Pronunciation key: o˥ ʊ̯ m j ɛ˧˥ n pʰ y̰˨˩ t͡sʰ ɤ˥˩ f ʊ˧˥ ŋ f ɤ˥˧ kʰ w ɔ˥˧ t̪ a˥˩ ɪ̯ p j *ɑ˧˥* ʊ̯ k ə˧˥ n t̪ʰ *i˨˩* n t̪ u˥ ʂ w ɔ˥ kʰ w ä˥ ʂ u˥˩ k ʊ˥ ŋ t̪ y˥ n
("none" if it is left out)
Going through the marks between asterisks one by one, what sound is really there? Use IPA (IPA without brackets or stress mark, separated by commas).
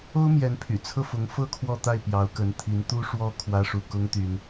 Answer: ɑ˧˥, i˧˥